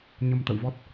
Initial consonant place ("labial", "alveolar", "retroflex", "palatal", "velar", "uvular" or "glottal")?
palatal